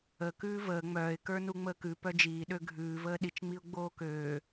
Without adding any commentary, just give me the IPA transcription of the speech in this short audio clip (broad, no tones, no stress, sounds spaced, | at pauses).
ə k ʉː v əː ŋ͡m œː ɪ̯ k ə˞ n u ŋ͡m əː k ʉ p œ d͡ʒ iː ɗ ø ɡʱ ʉː v əː ɗ i t͡ʃ ŋ͡m i ʊ̯ ɡ͡b oː k øː